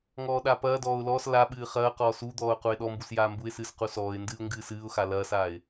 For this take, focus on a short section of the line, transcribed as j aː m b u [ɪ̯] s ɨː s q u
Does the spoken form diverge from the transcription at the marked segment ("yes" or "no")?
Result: no